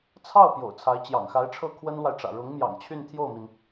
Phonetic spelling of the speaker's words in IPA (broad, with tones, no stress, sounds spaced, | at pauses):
t͡sʰ ɑ˥˩ ʊ̯ p j o̰˨˩ ʊ̯ t͡sʰ a˧˥ ɪ̯ t͡ɕ j ɑ̰˨˩ ŋ x a˧˥ ɪ̯ ʈ͡ʂʰ ɤ˥˩ kʰ w ə˥ n l w a˨ ɪ̯ ʈ͡ʂ ä̰˨˩ ɻ ʊ˧˥ ŋ m j ɑ̰˨˩ ŋ t͡ɕʰ y˥˧ n t̪ʰ j o˥˩ ʊ̯ m i˩ n